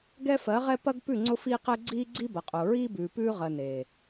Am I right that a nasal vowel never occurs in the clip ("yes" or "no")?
yes